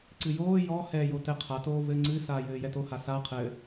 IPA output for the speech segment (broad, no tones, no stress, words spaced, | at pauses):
ǀɨjoː jɔ hɛːjotɛqʰa toːvɘ ŋ͡ǀɨ saːjɘːjɛto hasa qʰɘ